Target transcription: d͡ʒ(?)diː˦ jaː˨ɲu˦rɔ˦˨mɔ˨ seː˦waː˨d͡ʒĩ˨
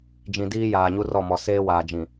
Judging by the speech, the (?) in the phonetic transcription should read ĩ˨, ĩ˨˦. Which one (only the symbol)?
ĩ˨